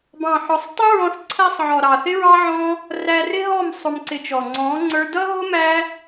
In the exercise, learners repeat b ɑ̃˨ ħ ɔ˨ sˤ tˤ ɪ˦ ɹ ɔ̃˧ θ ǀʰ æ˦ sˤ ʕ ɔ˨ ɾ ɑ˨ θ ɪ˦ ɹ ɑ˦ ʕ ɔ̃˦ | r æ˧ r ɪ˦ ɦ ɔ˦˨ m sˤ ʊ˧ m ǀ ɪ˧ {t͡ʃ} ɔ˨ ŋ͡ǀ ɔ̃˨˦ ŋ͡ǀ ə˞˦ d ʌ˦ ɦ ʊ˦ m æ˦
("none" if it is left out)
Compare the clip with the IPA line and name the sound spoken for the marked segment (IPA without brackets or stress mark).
t͡ʃ